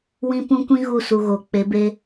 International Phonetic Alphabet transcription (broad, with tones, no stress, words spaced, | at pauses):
wĩ˦pũ˦ kʷĩ˦ɣu˦˨su˨ ɣo˨ k͡pe˨˦be˦